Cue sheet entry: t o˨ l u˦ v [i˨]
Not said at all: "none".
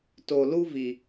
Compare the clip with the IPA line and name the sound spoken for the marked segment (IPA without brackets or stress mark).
i˨